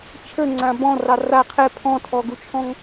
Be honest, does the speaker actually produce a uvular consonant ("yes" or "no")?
yes